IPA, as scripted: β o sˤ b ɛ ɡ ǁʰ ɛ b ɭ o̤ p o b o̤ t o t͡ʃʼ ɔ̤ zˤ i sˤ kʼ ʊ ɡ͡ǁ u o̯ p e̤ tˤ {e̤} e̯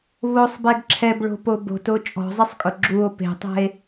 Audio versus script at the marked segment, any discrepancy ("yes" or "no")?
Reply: yes